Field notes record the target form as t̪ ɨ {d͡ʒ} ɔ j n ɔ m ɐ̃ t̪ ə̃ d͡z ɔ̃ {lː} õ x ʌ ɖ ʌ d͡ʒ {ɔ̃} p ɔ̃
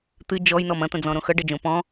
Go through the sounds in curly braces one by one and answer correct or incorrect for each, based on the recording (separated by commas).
correct, incorrect, incorrect